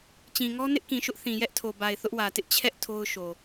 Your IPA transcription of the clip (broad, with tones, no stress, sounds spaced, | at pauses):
t͡ɕ ĩ˨ ŋ ɔ˦ n ɪ˦ ʔ k ĩ˨ ʃ ʊ˦ ʔ θ ĩ˨ j ɛ˦ ʔ tʰ o˨ b a˨ ɪ̯ θ ʊ˦ ʔ w ä˨ t ɪ˦ ʔ t͡ɕʰ ɛ˦ ʔ tʰ o˦ ʊ̯ ʃ o˨